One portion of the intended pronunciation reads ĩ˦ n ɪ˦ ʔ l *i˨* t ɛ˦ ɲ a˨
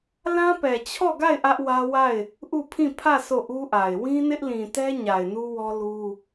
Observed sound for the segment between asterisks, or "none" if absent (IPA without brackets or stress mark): ĩ˨